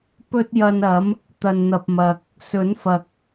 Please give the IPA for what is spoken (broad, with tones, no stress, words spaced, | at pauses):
pɵ˥t̚jɐ˧nɐ˨˥m | t̪ɐ˨nn̪ɐ˨p̚mɐ˨k̚ | sɵ˨˥nfɐ˨k̚